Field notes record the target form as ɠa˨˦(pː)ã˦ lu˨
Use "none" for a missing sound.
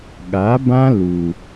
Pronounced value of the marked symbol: b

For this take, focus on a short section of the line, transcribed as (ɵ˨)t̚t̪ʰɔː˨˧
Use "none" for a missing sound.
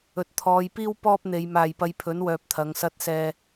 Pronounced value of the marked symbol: ɵ˨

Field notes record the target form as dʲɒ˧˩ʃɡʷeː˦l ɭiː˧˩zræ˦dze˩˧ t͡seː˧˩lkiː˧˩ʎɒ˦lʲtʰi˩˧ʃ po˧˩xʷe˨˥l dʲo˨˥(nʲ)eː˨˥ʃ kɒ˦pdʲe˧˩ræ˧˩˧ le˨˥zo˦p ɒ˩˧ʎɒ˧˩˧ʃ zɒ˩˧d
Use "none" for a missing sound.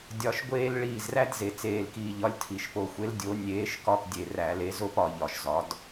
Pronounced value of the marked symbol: nʲ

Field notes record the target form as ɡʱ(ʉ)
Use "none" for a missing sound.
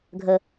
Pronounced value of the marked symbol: ə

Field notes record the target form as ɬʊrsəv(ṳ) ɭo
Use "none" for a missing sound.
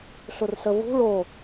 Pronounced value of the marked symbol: ṳ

